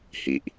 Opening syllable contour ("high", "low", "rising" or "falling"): low